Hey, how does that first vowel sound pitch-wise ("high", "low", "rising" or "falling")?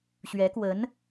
rising